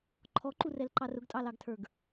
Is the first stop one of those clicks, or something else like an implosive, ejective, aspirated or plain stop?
click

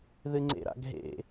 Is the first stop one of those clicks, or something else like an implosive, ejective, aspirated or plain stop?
click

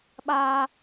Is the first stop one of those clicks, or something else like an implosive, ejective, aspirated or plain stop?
implosive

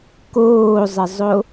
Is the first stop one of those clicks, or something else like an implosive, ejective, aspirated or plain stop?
plain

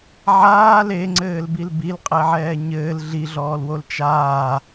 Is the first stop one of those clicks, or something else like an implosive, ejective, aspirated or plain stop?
click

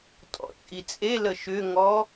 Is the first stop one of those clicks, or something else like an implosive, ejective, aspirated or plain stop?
ejective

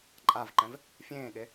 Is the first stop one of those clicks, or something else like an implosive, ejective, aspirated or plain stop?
click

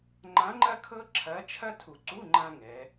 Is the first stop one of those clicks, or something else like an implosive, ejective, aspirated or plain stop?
click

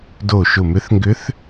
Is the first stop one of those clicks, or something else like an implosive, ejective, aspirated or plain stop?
plain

